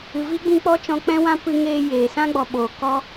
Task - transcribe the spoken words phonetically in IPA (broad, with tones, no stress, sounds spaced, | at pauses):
ɨ˨ v i˦ ɡ͡b ĩ˧ k͡p ɔ˦ t͡ʃ ɔ̃˧ k͡p ɛ̃˦ w ã˦ p ɨ˧ ŋ eː˧ j eː˨ s ã˦ ɡ͡b ɔ˨ ɓ oː˨ k ɔ˦